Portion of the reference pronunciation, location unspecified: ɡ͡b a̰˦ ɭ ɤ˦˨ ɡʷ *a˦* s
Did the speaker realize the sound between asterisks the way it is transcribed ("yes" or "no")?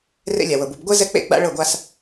yes